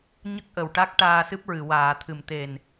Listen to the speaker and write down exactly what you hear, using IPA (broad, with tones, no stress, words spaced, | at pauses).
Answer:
ɲə˦˥k̚ʔə˨˩wʈa˦˥k̚ ʈaː˧sɨ˦˥p̚ɹɨ˨˩˨ waː˨˩˨t̪ʰɨ˨˩˨mt̪e˨˩n